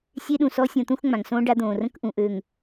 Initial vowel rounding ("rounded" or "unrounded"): unrounded